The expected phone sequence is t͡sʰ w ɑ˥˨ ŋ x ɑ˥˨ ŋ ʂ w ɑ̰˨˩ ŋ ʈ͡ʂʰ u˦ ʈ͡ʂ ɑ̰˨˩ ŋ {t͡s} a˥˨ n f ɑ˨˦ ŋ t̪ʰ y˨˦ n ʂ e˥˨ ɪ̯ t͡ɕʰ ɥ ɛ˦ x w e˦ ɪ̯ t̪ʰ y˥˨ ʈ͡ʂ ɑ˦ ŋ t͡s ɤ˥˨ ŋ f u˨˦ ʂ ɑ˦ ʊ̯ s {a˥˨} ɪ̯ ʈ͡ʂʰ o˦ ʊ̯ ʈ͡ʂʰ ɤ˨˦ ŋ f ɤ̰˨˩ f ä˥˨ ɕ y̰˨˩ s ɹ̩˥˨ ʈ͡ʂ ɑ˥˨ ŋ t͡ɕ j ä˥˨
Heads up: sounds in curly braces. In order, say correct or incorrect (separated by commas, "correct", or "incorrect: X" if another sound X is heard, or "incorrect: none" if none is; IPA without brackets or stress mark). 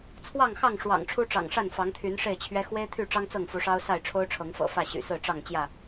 incorrect: ʂ, correct